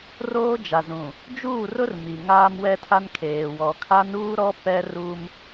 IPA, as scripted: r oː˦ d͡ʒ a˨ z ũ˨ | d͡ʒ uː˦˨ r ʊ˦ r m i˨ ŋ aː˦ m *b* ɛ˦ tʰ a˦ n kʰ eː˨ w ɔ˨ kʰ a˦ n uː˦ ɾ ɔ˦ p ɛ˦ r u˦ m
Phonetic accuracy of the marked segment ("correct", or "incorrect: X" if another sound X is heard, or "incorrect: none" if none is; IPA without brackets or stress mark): incorrect: w